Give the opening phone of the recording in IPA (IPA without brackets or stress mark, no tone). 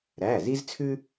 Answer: ɾ